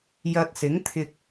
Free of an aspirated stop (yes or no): no